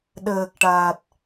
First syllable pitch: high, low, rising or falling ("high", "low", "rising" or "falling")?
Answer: low